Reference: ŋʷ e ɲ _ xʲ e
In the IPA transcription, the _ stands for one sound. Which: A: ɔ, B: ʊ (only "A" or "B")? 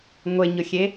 B